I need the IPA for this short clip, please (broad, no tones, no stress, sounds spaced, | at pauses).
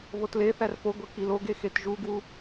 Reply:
β o t l e θ æ r p o ɡʷ e k i l o ɡ e x e t ʒ u ɡ w u